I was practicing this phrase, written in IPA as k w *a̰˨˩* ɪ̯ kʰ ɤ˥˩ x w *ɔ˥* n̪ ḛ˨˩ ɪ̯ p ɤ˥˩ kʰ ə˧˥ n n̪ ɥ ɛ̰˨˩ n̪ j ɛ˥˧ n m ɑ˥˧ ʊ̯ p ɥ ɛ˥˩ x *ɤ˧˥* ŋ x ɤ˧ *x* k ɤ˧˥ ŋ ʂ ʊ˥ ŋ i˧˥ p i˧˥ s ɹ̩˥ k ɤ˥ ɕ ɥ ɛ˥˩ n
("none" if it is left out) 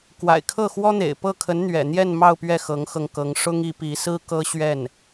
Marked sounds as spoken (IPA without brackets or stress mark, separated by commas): a̰˨˩, ɔ˥, ɤ˧˥, ŋ